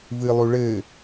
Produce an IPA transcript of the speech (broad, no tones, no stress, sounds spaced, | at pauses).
v ɨ lˠ u ɭ ɘː